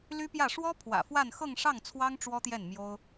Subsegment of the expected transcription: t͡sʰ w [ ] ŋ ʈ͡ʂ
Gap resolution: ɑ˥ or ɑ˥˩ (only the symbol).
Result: ɑ˥